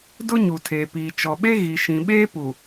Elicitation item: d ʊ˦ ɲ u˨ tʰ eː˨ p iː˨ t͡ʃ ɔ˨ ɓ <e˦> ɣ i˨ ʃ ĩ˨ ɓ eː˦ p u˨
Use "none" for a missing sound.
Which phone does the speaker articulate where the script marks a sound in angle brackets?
e˦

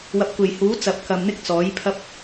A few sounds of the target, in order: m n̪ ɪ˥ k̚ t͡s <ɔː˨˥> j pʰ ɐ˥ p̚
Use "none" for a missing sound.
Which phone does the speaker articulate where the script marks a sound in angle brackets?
ɔː˨˥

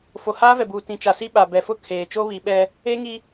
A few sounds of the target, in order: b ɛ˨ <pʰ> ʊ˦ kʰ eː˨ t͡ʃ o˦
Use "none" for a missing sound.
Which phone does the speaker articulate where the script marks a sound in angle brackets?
f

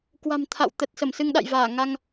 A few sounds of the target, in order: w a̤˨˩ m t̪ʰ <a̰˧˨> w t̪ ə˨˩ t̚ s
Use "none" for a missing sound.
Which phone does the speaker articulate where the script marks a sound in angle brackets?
a̰˧˨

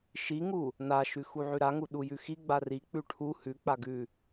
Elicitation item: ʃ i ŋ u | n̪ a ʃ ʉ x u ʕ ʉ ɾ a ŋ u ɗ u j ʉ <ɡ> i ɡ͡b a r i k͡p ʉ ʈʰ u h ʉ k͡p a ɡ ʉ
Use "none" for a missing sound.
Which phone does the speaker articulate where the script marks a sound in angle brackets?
x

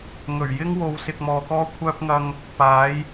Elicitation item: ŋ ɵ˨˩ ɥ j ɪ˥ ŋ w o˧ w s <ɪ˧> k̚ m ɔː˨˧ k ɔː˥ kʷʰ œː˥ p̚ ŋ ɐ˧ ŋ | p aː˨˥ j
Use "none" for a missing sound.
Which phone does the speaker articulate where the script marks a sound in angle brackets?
ɪ˧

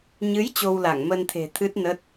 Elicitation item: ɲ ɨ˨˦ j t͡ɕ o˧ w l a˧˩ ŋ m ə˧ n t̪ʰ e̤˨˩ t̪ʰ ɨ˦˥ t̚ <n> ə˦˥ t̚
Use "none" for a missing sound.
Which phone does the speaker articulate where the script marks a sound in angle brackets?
n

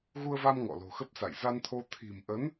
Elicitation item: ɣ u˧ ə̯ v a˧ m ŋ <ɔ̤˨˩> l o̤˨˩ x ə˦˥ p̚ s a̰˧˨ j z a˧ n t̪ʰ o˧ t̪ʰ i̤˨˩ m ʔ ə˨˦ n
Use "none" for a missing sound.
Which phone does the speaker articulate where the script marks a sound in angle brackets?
ɔ̰˧˨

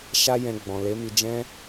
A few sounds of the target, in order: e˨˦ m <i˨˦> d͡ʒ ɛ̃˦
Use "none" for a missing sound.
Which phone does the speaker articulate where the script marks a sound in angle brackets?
i˧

